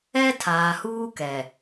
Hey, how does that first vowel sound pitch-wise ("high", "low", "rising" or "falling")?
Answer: high